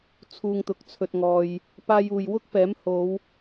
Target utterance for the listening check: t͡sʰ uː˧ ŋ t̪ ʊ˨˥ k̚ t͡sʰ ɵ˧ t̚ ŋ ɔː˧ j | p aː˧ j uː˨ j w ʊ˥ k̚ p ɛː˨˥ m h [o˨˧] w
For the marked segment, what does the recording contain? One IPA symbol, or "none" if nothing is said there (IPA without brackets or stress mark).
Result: o˨˧